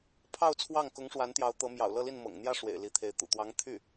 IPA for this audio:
pʰ ɑ˥˧ ʊ̯ t͡sʰ w ɑ˥˩ ŋ k ʊ˧˥ ŋ ʂ w a˧˥ n t̪ j ɑ˧˥ ʊ̯ t̪ ɤ˧˥ m j ɑ̰˨˩ ʊ̯ l ɤ˥˧ l i˥˩ n m ɤ̰˨˩ ŋ n̪ j ä˥˩ ʂ w ḛ˨˩ ɪ̯ l i˧˥ t̪ʰ e˧˥ ɪ̯ t̪ ṵ˨˩ t̪ w ɑ˧˥ ŋ t̪ʰ y˥˩

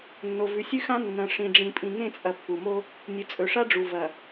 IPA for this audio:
nː o˨ v ʉ˨ sʲ ʉ˦ x ã˦ nː ɐ̃˨ ʂ ĩ˨ ɖ͡ʐ ĩ˨ pʼ ĩ˨ ŋ ẽ˦˨ t͡sʼ ɐ˨ pː u˨ m o˦ | nʲ ɨ˨ t͡sʼ ɵ˨ ʂ a˦ ɖ͡ʐ u˨ v ɐ˨

